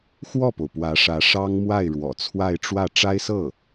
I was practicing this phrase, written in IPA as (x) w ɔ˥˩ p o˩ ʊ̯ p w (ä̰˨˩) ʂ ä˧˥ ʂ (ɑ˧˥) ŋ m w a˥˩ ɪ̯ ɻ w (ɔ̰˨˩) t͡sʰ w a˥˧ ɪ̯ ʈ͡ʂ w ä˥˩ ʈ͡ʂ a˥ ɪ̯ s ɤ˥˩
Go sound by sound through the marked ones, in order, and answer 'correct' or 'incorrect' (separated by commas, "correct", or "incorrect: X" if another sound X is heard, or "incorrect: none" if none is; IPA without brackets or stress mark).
correct, incorrect: ä˧˥, incorrect: ɑ˥, correct